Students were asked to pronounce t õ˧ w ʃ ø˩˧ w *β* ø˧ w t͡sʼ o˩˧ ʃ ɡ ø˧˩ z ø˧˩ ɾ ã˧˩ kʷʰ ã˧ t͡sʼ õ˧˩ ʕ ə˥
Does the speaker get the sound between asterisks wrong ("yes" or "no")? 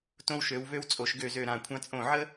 no